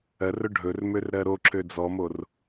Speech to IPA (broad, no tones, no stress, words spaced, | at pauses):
ɜrɵ ɖʱɵrmør ɾɜɾoǁø d͡zɔmor